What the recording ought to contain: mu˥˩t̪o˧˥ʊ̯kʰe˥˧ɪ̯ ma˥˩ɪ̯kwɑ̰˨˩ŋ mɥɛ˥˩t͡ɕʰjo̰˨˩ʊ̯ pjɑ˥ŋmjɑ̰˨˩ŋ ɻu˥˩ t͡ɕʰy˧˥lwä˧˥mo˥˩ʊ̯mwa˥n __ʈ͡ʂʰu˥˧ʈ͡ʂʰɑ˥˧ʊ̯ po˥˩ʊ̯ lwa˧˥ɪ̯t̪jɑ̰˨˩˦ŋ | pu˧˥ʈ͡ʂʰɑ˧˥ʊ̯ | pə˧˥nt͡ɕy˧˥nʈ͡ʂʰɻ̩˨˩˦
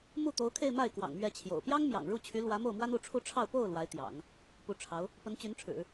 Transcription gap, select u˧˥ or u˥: u˧˥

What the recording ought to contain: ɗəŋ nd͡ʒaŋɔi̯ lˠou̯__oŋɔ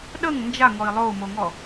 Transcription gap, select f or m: m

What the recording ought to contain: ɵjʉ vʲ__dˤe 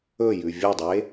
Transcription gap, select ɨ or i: ɨ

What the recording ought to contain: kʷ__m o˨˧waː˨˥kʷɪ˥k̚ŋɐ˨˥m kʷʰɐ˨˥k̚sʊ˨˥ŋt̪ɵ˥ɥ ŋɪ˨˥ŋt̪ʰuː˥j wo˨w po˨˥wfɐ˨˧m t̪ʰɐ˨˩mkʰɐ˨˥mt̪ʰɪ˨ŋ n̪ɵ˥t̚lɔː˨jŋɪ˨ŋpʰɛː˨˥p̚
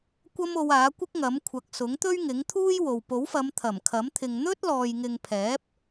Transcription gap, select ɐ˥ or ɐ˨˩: ɐ˥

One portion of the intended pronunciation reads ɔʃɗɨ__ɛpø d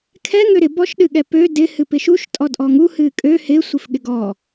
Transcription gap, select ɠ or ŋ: ɠ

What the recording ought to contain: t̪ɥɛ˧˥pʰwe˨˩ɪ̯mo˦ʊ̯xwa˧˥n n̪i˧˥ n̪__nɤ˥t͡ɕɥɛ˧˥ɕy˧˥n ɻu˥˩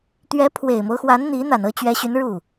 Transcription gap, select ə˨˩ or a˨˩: a˨˩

